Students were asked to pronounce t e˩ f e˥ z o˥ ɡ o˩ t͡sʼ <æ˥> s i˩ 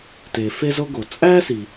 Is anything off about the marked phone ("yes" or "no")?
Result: no